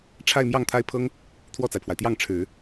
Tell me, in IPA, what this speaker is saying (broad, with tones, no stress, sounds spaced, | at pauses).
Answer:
ʈ͡ʂʰ a˥˧ ɪ̯ m j ɑ˥˩ ŋ t̪ʰ a˥ ɪ̯ pʰ ɤ˥ ŋ | t̪ʰ w ɔ˥˩ t͡s a˩ ɪ̯ pʰ w a˩ ɪ̯ t̪ j ɑ˥˩ ŋ ʈ͡ʂʰ ɻ̩˨˩˦